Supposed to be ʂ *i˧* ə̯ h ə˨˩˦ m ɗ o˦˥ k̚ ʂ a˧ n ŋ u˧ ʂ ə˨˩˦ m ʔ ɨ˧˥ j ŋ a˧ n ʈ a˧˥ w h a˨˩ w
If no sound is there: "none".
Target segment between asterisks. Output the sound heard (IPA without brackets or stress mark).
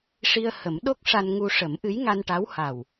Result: i˧